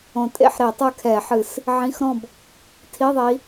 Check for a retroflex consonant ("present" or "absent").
absent